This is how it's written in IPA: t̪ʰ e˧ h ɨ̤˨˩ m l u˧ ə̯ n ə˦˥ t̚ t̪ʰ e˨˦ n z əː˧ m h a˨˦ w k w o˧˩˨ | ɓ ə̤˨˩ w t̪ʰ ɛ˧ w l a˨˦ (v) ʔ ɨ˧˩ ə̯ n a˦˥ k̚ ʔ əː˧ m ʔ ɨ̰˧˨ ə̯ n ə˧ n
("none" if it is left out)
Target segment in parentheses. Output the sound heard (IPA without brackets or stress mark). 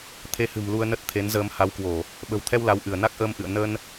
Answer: w